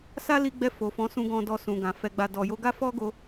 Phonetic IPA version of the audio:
s a˦ l i˧ ɡ͡b ɛ˧ f o˨ f ɔ̃˨˦ s ũ˧ ɡ ɔ̃˧ d ɔ˧ s ũ˨ ɡ ã˨ f ɛ˨ ɡ͡b a˨ d ɔ˨ j o˧ ɡ a˦ f ɔ˦ ɡ o˧

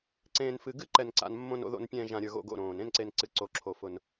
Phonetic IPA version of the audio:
ǀ ẽː˨ n f ɨ˨ ɡ ɨ˦˨ ǃ ɛ˨ n ǀ a̰˨ n mː õ˨ n o̰˨ ð o̰˨ n pʲ ɛ̃ː˨ ʒ ã˨ ɾʲ ə˞˨ ɣ o̰˦˨ ɡ o̰˦˨ ɾ õː˨ n ẽ˦˨ n ǀ e˨ n ǀ ɨ˨ ǀ o˨ ǁʰ o˨ f ʊ˨ n

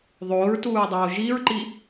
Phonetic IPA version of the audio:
ðˤ oː ɹ t uː ɹ dˤ oː ʒ i ɹ ǃ i

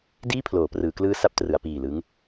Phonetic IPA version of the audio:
d iː˥˩ pʰ l oː˩˦ p r ɯː˩˦ k l ɯː˦˥ s a˦˥ p̚ t r ɯ˩˦ a̯ p iː˨˩ l ɯ˦˥ ŋ

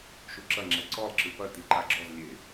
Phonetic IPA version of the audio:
ʃ u ǁ ɐ ŋ͡ǁ ɛ ǀ ɔ lˠ ǁ ɨ p ɐ t i ǃ a ɡ͡ǁ ɔ z lʲ e

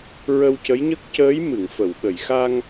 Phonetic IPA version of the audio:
ɹ ə˧ w c ə˧˥ j ɲ ə˦˥ k̚ c əː˧˥ j m ɨ˨˩˨ ŋ f ə˨˩˨ w ɓ ə˨˩˨ j x a˧ ŋ

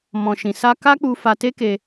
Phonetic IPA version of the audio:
m ɔ̃˨ ʃ ĩ˨ s a˧ k a˦ k͡p u˧ f a˧ t e˦ k e˧

